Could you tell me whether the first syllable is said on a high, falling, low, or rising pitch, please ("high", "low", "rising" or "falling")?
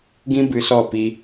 high